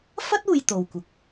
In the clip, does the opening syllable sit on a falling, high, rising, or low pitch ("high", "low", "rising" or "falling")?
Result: high